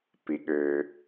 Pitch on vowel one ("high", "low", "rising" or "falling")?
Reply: low